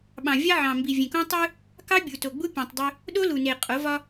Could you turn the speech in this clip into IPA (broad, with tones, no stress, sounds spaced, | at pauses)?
ɓ ɑ̃˨ vʲ ɑ˦ ʕ ɑ̃˨ m b i˨ vʲ ẽ˨ k õ˦ tˤ ɯ˦ | k ɑ˦ bʲ u˨ t o˨ ɡ͡b u˦ pʲ ũ˨ tˤ dˤ ø˦ | ɗ o˦ l u˨ n e˨ qʼ o˨˦ v ɒ˦